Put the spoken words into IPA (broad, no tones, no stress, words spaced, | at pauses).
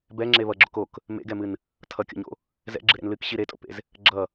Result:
bɛŋ͡ǁe βʌɡ͡ǁok ok | mḛɡɛmɨn | tʰʌkʲo̰ɲo̰ | zɛ̰ɡ͡ǁɨɾḛn lɨkɕi ɾetʼo̰pḛz | ɡ͡ǁʌ